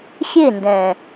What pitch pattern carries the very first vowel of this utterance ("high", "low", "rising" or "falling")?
falling